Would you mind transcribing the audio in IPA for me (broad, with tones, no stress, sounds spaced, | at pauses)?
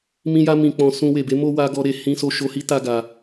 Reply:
m ĩ˧ j a˧ m ĩ˨ k͡p ɔ̃˨ s ũ˧ w e˨ b e˨˦ m o˦ w a˧ ɡ ɔ˧ ɾ e˨ h ĩ˧ s o˧ ʃ o˧ h i˦ t a˦ ɡ a˧